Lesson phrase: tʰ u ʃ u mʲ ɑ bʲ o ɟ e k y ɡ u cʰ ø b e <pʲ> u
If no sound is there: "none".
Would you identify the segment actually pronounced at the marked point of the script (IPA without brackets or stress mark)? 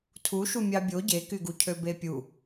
pʲ